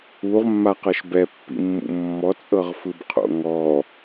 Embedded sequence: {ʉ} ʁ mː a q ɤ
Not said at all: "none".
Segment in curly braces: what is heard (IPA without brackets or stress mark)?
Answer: u